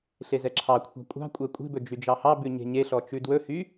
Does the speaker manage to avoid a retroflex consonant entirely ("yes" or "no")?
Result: yes